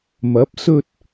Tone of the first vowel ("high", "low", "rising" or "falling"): rising